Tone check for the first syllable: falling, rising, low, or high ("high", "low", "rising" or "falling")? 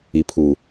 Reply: low